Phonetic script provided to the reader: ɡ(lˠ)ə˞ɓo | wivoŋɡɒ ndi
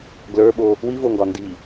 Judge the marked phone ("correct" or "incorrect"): incorrect